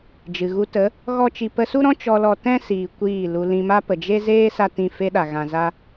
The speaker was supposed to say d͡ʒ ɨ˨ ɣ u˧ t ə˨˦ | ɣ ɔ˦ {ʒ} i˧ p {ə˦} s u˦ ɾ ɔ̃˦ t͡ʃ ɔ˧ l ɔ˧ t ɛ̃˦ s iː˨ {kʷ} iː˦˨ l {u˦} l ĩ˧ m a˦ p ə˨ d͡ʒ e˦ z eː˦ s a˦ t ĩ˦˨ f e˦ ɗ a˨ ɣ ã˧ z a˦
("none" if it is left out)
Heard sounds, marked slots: t͡ʃ, ə˧, kʷ, u˧

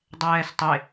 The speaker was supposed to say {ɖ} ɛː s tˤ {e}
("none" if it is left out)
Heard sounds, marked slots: dˤ, e

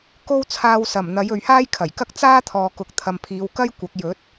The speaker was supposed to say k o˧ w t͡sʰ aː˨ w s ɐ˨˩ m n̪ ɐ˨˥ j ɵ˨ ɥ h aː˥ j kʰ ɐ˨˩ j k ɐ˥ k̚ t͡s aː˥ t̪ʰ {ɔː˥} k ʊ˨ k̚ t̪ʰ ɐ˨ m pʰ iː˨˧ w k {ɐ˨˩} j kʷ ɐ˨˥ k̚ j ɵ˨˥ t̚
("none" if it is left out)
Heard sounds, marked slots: ɔː˨, ɐ˥

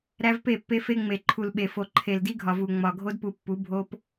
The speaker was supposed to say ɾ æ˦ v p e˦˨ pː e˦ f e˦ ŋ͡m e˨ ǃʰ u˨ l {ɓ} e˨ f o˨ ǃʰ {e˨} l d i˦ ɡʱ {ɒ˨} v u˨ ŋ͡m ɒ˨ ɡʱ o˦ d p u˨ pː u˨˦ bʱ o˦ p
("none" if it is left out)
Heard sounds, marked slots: ɓ, e˨, ɒ˨

